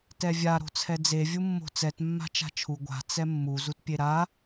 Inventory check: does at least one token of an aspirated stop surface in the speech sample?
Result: yes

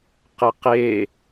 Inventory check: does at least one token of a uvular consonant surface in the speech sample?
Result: yes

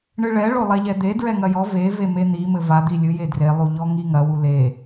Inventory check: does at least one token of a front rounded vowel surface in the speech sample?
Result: no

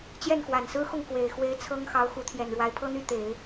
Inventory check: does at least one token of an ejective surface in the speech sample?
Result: no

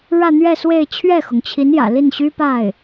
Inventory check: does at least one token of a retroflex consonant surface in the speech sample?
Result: yes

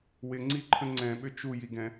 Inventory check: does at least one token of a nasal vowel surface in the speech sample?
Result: yes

